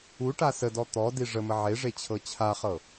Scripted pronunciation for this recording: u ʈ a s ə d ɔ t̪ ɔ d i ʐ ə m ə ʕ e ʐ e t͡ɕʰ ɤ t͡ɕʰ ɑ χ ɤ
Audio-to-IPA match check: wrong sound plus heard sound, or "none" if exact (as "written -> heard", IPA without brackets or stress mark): ɑ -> a